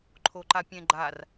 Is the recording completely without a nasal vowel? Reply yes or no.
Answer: no